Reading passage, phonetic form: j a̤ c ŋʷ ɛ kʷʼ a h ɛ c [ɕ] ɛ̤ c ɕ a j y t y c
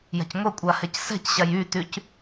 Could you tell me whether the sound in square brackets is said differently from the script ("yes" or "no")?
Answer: yes